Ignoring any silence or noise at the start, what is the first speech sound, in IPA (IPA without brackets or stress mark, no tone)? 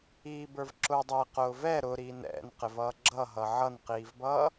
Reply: iː